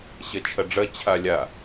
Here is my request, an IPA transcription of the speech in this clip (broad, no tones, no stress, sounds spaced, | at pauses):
ɕ ɐ t͡ʃʰ ɐ ɖ͡ʐ ɐ t͡ɕʰ a lʲ a